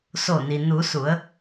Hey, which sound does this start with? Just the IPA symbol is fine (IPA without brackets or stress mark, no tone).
s